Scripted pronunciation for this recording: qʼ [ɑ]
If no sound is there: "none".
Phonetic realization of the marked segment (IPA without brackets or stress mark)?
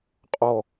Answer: ɔ